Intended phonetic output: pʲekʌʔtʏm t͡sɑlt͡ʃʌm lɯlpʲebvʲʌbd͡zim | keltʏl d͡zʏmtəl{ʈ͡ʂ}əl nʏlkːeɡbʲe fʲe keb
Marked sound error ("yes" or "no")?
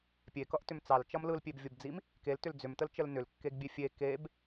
yes